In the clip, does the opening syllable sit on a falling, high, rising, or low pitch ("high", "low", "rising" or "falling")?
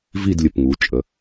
falling